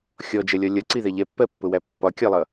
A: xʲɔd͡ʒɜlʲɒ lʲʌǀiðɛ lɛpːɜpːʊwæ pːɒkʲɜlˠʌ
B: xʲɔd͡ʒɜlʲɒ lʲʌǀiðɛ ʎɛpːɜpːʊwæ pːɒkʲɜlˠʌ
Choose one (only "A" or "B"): B